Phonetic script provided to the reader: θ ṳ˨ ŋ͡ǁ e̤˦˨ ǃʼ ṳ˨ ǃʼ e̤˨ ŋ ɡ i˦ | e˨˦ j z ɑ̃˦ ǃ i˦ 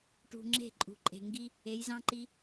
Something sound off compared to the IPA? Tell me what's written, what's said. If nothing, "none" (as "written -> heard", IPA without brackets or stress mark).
θ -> ʈ